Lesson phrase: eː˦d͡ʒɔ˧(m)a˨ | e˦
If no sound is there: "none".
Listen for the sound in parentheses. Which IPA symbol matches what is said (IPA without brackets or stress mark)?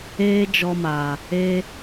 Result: m